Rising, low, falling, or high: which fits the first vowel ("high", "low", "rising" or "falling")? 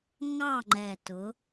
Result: falling